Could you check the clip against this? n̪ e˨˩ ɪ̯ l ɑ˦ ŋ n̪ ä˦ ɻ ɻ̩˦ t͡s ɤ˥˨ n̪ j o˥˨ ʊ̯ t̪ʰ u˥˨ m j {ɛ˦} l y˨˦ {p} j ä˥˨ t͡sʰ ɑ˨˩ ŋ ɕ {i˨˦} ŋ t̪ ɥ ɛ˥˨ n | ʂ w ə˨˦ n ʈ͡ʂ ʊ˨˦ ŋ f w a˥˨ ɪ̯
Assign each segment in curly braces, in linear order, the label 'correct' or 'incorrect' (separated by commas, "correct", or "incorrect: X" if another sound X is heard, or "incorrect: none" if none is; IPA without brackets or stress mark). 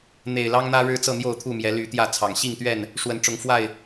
incorrect: ɛ˨˦, incorrect: t̪, incorrect: i˥˨